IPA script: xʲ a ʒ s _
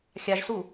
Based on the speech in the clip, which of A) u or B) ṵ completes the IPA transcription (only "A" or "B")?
A